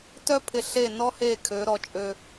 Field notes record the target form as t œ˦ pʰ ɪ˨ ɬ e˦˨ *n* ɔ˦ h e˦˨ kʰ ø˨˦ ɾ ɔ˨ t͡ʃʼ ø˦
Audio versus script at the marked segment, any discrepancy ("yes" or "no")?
no